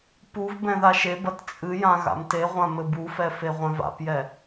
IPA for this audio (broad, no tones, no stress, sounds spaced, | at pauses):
p u v b ɛ̃ ð a ʃ e b ɐ t t͡sʼ ɨ j ã ɣ a̰ m t e ʁʷ ã m ɘ b u f ɛ f e ʁʷ ɛ̃ v a̰ p j ɛ